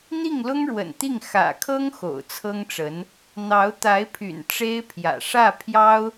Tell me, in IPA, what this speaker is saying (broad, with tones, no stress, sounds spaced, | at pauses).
n̪ i˥˩ ŋ l ʊ˥ ŋ ɻ w ə̰˨˩ n t̪ i˥˩ ŋ x ä̰˨˩ kʰ ɤ˥ ŋ x o̰˨˩ ʊ̯ t͡sʰ ɤ˥ ŋ ʈ͡ʂ ə˧˥ n | n̪ ɑ˧˥ ʊ̯ t̪ a˧˥ ɪ̯ pʰ y̰˨˩ n ʈ͡ʂ e˥ ɪ̯ pʰ j ä̰˨˩ ʂ ä˥˩ pʰ j ɑ˥ ʊ̯